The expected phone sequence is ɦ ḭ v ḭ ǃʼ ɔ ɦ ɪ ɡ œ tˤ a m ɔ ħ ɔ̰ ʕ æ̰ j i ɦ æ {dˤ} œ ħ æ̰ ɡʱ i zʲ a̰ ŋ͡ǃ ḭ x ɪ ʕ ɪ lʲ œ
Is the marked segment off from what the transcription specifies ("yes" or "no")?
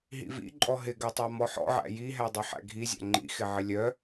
no